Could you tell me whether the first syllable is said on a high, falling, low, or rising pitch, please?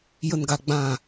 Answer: low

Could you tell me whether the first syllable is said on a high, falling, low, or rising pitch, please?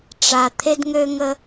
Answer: low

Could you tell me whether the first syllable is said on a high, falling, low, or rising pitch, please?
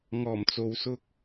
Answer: low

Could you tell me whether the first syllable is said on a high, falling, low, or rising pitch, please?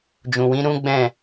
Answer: low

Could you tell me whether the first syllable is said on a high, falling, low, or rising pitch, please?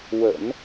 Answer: low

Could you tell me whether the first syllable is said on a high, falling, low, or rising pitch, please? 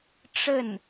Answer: falling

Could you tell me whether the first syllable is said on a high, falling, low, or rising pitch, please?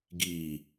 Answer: low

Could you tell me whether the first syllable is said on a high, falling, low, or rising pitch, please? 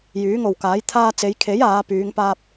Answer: rising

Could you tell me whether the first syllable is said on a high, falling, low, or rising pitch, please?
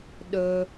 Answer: high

